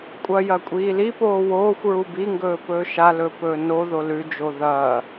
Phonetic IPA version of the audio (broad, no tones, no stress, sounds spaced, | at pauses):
kʷʼ ɐ j ɐ kʷʼ iː l i p oː w oː xʷ ɹ u b i ŋ ɡ ɵː p ɵː ʃ a l ɵ p ɵː n o ð o l ʉ d͡ʒ o ð ɐː